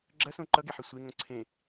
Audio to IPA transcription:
ɡ͡ǁ ɐ s õ ǃ ʌ ɡ e ħ ɨ sʷ e ŋ õ ǀʰ ẽ

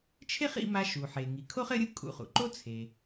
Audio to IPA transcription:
t͡ʃʰ e˥ χ ḭ˧ m a˧ ʃ u˩ ħ e˩ ŋ i˩ kʰ o˥ χ ɘ˥ ɾʲ ɯ˥ kʼ ṵ˧ χ ṵ˩ ǃ o˥ t͡sʰ e˩

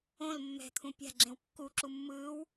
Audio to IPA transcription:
õ l mː ɛ̤ t̪ʰ ũ pʲ a̤ ɡ͡ǁ ẽ w kː u ǁ u mː ɯː w

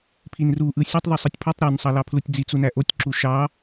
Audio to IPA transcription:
pʰ i n r u ʔ ɯ sʲ o tˤ ðˤ u sˤ ɯ tʲ pʰ u tˤ ɾ ø n sˤ ɑ l ɑ pʰ l u tʲ d͡z i t͡s u n æ ʔ o tʲ ǁ u ʃ ɑ

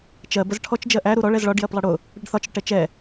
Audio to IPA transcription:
t͡ʃ ɜ b ə z ʈʰ ɔ t͡ʃ d͡ʒ ɜ ʔ æ ɾ u ɾ ɔ ɭ ɛ z ɭ ɒ ɖ j ɜ p lˠ ʌ ɽ ʊ | ɽ ə ɖ θ ɒ t͡ʃ ɽ ʊ ʈ ɛ t͡ʃ ɛ

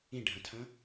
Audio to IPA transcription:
ĩ ɖʱ ɐ̃ tʰ ɐ̃

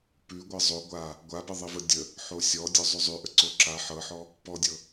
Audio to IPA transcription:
p ʉ ɡʷ ɤ zˤ o ɡʷ a | ɡʷ a b ɘ ðˤ i v ə dʲ ə | ħ o sʲ ɔ dʲ ɔ zˤ ʉ zˤ ʉ ʔ ə ǀ o ǁ a ħ ɤ ħ ɔ | p ɔ dʲ ɤ

